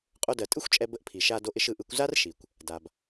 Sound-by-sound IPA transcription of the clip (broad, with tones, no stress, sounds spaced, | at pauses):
qʼ o˧ d ɜ˩ tʼ ɯ˥ xʷ t͡ʃʼ ɛ˧ b ə˧ ʔ pʰ i˩ ʃ a˧ d o˧ ʔ ɪ˧ ʃ ɯ˩ ʔ ɯ˧ kʷ z a˥ r ʃ i˩ kʷ | d a˩ b